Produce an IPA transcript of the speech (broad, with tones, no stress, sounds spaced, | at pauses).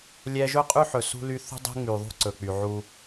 lʲ ɛ˦ ʒ ɵ˦ qʼ y˦ ħ ɵ˨ s ṳ˦ l y˦ θ ṳ˦ dˤ e̤˦ ŋ͡m y˨ ðˤ ṳ˦ ǀ ɵ˨ k͡p y˨ ʕ u˦